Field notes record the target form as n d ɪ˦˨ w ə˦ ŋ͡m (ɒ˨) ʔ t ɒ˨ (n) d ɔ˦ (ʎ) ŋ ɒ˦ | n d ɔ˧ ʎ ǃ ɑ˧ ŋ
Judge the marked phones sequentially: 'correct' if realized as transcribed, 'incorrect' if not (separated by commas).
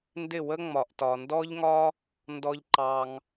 correct, correct, correct